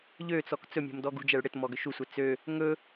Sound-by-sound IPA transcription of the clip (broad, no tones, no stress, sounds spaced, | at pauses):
ʎ ø t͡s ɔ k t͡s ɵ mʲ o̤ m d ɔ ɡ ṳ d͡ʒ ɛ ɭ ɽ ɪ t m ɔ ɡ ʏ ʃ u sʷ ɛ t͡s ø | ŋ ɵ